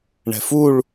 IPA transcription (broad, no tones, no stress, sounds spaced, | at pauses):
ɳ ɛ̤ f u ɭ